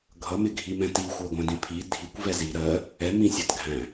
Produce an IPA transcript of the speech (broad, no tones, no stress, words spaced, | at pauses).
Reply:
ɡʱʌmɪɡʱimɛ̃ tixʷɛɡʷæ̃dĩ pʰi dʱikʷvɛ zi ɾɜ | ɛmĩsʲɜtɡʱæ̃